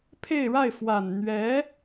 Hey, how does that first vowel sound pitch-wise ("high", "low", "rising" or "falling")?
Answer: falling